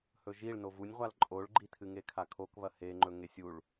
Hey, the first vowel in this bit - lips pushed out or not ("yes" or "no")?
yes